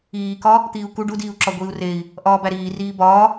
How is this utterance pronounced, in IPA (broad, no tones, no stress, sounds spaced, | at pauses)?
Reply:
iː k ɒ | t̪ iː u̯ k u ɖ u d iː u̯ ǁ ɒ ɡʷ iː u̯ r e i̯ | ʔ ɒː b æ ɾ iː r iː b ɒː